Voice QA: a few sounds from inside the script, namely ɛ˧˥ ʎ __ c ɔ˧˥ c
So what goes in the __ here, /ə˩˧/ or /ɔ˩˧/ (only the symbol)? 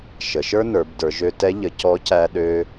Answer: ə˩˧